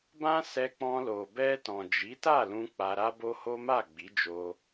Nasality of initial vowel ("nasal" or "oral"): nasal